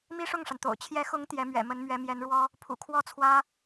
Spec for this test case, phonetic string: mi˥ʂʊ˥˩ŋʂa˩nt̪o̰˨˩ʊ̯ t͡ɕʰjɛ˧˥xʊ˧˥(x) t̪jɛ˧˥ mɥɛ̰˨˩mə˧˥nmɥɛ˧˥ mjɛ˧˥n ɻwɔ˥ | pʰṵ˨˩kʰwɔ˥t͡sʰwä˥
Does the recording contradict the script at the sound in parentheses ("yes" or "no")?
yes